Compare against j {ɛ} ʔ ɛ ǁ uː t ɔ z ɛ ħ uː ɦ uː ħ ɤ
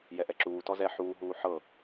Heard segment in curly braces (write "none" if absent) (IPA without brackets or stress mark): ɛ